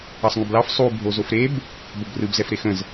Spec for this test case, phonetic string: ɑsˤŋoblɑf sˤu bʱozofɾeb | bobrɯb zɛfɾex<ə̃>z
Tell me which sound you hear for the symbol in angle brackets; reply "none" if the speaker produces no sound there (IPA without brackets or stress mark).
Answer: ə̃